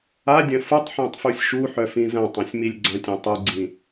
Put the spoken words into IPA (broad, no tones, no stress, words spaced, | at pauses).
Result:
adʲɐ̃ futˤħœ̃tˤfusʲ ʃuħœfĩ zɐ̃tˤɐ̃sʲmilʲ ɡ͡ǀɐ̃tʲɐ̃ tˤɯɡ͡ǀĩ